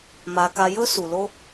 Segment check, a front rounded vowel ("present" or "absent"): absent